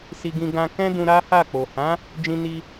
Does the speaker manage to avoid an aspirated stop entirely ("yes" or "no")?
yes